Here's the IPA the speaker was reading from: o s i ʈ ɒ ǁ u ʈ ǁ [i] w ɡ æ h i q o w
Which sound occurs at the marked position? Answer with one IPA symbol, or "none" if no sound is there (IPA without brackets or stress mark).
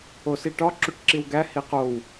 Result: i